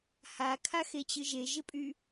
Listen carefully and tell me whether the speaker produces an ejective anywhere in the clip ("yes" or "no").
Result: yes